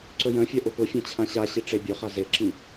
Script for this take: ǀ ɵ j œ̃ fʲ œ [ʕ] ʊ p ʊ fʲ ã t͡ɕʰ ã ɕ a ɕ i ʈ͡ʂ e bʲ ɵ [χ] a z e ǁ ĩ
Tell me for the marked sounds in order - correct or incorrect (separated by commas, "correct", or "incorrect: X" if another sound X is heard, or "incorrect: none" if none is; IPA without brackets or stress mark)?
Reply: incorrect: ʔ, correct